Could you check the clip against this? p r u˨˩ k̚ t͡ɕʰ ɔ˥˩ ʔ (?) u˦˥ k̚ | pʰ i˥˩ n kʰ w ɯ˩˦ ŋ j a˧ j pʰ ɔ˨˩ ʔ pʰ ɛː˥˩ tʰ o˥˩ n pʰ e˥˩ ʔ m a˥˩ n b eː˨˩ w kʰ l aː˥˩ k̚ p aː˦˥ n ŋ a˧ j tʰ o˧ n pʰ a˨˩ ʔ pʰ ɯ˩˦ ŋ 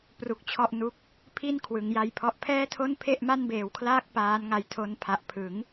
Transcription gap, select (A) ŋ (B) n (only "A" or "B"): B